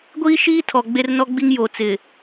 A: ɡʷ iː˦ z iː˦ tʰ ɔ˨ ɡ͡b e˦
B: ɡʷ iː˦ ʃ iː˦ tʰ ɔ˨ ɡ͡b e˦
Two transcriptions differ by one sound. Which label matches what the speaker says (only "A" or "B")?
B